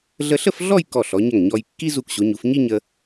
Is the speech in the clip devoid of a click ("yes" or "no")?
yes